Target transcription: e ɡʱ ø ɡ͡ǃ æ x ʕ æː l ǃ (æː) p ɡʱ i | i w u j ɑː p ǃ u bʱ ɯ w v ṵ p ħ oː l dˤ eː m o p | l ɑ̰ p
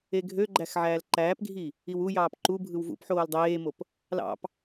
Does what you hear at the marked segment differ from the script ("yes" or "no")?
no